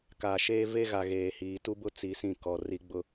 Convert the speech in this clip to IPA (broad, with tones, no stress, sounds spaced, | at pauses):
k aː˨ ʃ eː˦ v e˦ ɣ a˨ ɣ eː˨ h iː˨ t u˦ b ʊ˦ t͡s i˨˦ s ĩ˦˨ k ɔ˨ r i˨ ɡ͡b ʊ˨